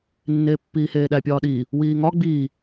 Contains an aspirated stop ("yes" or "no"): no